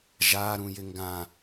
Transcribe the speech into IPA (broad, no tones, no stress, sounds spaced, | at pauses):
ʒ a ɾ ũ j ɪ ŋ ɡ ã